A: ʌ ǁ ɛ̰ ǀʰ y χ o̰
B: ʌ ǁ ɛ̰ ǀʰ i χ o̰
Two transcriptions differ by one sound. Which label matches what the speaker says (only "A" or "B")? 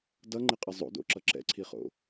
B